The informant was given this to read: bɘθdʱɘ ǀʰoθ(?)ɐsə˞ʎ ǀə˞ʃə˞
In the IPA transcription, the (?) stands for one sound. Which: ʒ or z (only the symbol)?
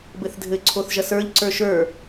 ʒ